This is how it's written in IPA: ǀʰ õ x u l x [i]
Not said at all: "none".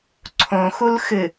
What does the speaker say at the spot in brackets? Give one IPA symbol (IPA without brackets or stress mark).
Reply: ɨ